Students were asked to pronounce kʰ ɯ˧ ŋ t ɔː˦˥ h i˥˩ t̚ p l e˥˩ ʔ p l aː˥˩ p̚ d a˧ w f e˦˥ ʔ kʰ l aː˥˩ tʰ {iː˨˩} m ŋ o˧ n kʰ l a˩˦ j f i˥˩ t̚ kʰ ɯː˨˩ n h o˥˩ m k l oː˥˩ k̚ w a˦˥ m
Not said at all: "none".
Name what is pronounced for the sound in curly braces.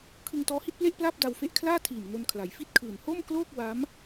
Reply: iː˨˩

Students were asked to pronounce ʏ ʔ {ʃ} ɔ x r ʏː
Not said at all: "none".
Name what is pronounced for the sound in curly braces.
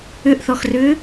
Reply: θ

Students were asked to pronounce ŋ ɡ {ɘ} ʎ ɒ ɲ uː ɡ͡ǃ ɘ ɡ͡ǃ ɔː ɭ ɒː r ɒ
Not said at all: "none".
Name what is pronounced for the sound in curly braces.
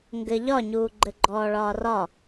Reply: ɘ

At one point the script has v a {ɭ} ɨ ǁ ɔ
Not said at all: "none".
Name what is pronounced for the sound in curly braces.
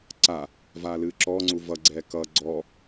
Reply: l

